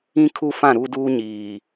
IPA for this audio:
ĩ˦ kʰ u˦ f ã˦˨ ɾ u˦ d uː˦ ɲ iː˨

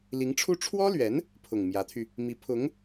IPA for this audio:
l i˧˥ ŋ ʈ͡ʂʰ u˥ ʈ͡ʂʰ w ɔ˥ l ɥ ɛ˧˥ n | pʰ ʊ˨˩ ŋ m j ä˧˥ t̪ʰ y˧ | m i˧˥ pʰ ʊ˧˥ ŋ

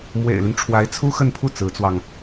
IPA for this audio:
m w ḛ˨˩ ɪ̯ l y˦ n ʈ͡ʂʰ w a˧˥ ɪ̯ t͡sʰ u˥ x ə˥˧ n pʰ u˥˩ t͡s ɹ̩˧˥ t͡s w ɑ˧ ŋ

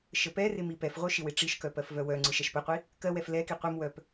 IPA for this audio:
ʃ ə p ɛ r ɪ m i p ɛ f ʁʷ œ ʃ ɪ w ɪ ʈ͡ʂ i ʃ k œ p ɜ f v œ w œ ŋ͡ǀ ɯ ʃ ɛ ʃ p ə qʷ i | k ɜ w ɛ f l ɛ k i qʷ ɯ m w œ p

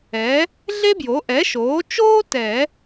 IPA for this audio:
ɛ˩˥ | ɮ e˥ b j o˩˥ ʔ ɛ˩˥ ʃ oː˩˥ t͡ʃ oː˥ t ɛ˨˩˦

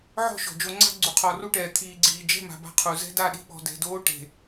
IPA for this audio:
ʕ ɔ̤˦˨ ʃ ɔ̤˨ d͡ʒ o˨˦ ŋ͡ǀ a̤˦ ɡ͡ǀ u˨ qʰ ɔ˨ r u˦ ʈ ɛː˨ t̪ʰ iː˨ ɡ͡ǀ iː˨ d͡ʒ ɛ̤˦˨ m a̤˨ b a̤˦ qʰ u˨ z ɛ̤˦ d a˦˨ ɗ i̤˦ ɓ ɔ̤˨ d ɛ̤˨ d oː˦ ʈ e̤˨

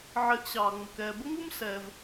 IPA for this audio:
ʕ ɪː˧ ʔ ɕ ɑː˨ ŋ͡m ʊ˨ k ɛː˧ b ə˦ ŋ u˦ m s ɛː˧ v

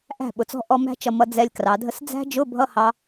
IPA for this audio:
ʔ æ̤˥˩ ɓ ʊ˩˧ t͡s ɔ̤˦˥ ʔ ɔ˧˥˧ m æ̤˦˥ t͡ʃ ʌ˧ m ʌ˧ d͡z ɛ˧ lʲ k r ɑ˩˧ dʱ ə˦˥ s d͡z æ̤˦˥ d͡ʒ ʊ˧˥˧ bʱ ʌ˧˥˧ h ɑ˦˥

